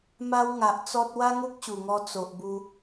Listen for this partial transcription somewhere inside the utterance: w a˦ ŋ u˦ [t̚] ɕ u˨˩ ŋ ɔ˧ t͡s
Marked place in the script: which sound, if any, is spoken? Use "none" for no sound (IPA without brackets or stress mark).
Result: k̚